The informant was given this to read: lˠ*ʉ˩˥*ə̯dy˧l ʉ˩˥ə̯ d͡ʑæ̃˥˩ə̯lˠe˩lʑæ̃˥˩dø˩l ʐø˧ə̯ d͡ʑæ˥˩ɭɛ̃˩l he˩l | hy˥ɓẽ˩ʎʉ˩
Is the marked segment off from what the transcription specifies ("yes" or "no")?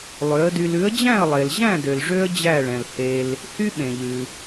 yes